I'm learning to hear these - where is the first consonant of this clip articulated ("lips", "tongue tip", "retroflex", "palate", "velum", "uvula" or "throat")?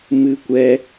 lips